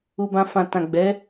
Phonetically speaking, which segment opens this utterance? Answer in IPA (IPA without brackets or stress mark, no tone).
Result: u